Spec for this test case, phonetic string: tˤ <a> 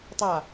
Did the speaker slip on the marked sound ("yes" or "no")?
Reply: no